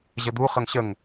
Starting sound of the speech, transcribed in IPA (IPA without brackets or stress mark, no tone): ʑ